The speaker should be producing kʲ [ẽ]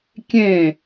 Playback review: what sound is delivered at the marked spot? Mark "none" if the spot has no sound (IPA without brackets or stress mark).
ẽ